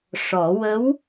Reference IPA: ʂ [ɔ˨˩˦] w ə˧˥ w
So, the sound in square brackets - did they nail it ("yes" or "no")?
yes